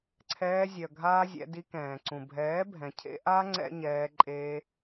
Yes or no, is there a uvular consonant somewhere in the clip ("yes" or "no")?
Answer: no